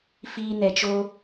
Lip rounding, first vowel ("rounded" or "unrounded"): unrounded